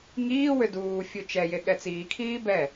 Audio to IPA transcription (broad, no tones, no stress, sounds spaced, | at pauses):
ŋ iː w ʏ d uː fʲ u t͡ʃ ɛ j e ɠ ɛ t͡s iː kʰ iː b ɛ